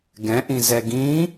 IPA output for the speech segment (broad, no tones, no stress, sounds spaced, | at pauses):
ɡ ɛ̃ ʔ ĩ z ɛ ɡ ĩ